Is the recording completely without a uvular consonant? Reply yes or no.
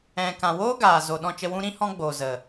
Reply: yes